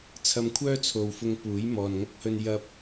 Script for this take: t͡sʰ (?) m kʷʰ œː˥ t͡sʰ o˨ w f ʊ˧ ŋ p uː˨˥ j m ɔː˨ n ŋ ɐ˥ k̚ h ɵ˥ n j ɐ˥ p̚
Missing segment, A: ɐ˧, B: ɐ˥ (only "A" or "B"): A